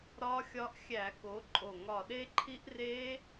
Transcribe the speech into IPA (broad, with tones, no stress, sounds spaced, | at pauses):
ɾ ɒ˦˥ xʲ ɒ˦˥ ʔ xʲ æ˧˩˧ k o˨˥ ǃʼ o˧˩ ŋ ɒ˧˩ ɗ e˦˥ ǃʰ i˦˥ ʔ r e˦˥